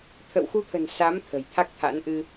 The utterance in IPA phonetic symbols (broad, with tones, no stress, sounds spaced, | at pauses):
t̪ʰ ə̰˧˨ w x u˧ t̪ʰ ə̤˨˩ n s a˨˦ m t̪ʰ ə̤˨˩ j t̪ʰ a˦˥ k̚ t̪ʰ a̰˧˥ n ʔ ɨ˧